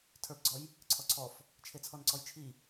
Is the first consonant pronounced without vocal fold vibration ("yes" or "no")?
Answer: yes